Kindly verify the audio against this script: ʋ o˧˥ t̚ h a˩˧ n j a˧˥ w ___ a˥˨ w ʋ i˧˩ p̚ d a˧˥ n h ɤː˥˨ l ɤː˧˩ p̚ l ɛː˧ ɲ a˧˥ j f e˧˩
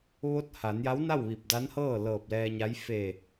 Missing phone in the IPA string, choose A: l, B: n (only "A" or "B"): B